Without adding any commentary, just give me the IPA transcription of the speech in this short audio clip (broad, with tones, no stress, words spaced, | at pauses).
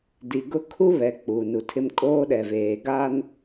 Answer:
di˨ɡʊ˦ kʰu˦ βɛ˨ k͡pu˨nu˨tʰɪ˦m kʼoː˦ɗɛ˨veː˨ ɡa˦n